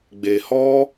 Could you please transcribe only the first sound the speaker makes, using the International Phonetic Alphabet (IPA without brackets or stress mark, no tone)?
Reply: ɡ͡b